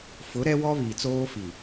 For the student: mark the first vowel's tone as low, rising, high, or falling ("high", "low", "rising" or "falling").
rising